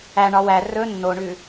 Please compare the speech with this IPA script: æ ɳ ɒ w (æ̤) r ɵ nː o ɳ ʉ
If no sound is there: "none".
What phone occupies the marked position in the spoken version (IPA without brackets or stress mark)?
æ